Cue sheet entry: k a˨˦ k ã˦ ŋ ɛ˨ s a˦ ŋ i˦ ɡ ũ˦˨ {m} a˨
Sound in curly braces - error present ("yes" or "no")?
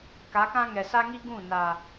yes